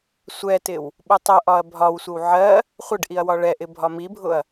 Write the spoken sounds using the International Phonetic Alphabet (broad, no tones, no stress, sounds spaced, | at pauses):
sʷ ɛ t ɪ w | ɓ ʊ tˤ ʊ ʔ ɒ ɐ̯ bʱ ɒ w sʷ ə w ʕ ɜ | χʷ ə ɖ ʔ i ɐ̯ w ɒ ɭ ɛ ʔ ɪ bʱ ɒ m i bʱ ʊ ɐ̯